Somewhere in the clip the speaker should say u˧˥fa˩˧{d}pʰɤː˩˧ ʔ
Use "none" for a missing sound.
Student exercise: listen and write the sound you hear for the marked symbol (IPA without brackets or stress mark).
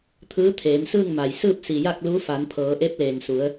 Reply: n